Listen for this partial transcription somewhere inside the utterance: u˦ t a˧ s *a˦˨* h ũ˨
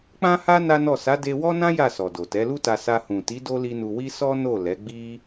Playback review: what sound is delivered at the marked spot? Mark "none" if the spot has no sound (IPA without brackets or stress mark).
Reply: a˧